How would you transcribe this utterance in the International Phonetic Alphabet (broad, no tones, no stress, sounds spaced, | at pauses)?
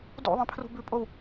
d ṵ ðˤ ĩ pʰ r ṳ b ʉ pʼ o w